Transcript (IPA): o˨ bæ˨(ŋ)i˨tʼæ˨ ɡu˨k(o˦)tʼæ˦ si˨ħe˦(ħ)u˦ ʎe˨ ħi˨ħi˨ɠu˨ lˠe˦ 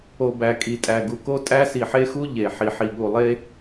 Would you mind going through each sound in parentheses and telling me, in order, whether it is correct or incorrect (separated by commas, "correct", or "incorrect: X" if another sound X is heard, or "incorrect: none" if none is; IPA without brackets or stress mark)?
incorrect: kʼ, correct, incorrect: x